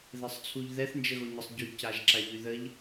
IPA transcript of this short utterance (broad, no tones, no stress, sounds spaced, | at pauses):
ð ɛ sˤ t͡sʰ u ʎ ð ɛ θ n d͡ʒ ə ɣ o ɲ ə sˤ ɟ y c a ʒ ǁ a ʎ y ð ə ʎ